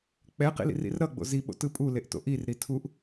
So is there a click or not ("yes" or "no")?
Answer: no